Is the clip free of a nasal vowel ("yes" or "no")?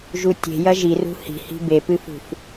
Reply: yes